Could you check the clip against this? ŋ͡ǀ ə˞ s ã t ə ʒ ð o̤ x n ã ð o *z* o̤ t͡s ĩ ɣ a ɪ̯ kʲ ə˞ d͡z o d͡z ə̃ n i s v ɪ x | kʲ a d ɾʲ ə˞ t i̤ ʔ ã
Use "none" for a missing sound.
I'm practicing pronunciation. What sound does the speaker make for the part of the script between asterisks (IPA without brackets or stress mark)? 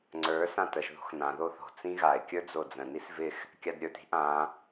θ